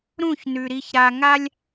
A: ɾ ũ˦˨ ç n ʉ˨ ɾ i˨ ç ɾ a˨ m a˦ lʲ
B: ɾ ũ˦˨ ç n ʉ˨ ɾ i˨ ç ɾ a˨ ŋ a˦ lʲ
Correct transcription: B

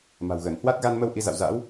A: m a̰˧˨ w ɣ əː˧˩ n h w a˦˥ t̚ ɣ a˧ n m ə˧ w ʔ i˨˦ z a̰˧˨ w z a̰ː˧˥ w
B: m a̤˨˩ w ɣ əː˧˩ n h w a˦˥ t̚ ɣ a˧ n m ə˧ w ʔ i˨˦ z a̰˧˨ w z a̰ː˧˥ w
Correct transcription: B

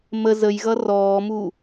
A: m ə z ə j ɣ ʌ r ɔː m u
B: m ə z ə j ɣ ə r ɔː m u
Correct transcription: A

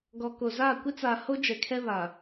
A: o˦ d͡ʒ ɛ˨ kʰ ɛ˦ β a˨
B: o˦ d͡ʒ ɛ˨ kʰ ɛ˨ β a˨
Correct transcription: A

